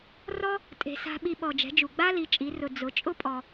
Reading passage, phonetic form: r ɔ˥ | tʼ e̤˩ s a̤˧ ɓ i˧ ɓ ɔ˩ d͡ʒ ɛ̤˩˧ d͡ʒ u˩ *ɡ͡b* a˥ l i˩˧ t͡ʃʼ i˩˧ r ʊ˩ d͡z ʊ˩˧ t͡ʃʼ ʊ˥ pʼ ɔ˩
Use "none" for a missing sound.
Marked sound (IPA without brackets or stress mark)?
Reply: ɡ͡b